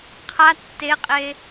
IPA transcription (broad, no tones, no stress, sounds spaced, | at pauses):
qʰ a tː e qʼ e